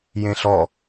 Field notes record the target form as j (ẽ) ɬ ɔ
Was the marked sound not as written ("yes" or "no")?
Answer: no